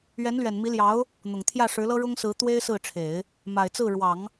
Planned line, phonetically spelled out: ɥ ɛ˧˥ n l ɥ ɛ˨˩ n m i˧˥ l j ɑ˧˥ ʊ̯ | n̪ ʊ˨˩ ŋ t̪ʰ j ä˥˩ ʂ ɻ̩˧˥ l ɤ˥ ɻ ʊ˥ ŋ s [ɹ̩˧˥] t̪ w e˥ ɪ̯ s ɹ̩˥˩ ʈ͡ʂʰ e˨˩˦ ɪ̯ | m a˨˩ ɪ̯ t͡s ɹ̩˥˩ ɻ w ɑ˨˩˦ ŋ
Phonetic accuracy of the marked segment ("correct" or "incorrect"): correct